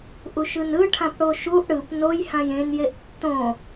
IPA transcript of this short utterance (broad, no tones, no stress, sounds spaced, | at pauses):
ʔ u ʃ ɯ n ɯ ʈʰ ã p ɽ o ʃ u ʔ ɽ ɯ p n o j h ã j ẽ n j e ʔ tː õ